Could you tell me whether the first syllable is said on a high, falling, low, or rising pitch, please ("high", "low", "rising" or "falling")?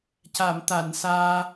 low